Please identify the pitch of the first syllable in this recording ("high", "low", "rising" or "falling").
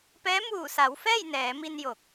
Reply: rising